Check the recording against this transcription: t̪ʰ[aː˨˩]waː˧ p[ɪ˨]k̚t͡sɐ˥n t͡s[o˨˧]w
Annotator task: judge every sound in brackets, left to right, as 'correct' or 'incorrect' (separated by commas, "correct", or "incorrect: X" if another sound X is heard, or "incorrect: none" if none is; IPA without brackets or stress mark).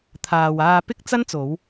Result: incorrect: aː˨, incorrect: ɪ˥, correct